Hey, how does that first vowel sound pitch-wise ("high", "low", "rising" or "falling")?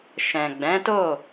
low